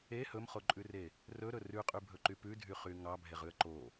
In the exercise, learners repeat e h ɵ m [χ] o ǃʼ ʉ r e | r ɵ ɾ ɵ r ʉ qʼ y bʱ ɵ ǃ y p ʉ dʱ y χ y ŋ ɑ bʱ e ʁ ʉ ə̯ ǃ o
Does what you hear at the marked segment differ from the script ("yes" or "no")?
no